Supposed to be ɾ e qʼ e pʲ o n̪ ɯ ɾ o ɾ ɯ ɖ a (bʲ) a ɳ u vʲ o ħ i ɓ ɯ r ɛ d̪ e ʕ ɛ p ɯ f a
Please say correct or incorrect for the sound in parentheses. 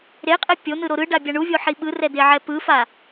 correct